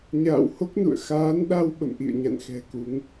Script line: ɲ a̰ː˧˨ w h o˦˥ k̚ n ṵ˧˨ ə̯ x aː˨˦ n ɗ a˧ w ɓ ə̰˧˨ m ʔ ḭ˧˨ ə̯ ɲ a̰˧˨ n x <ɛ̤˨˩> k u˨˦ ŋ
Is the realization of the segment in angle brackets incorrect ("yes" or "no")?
no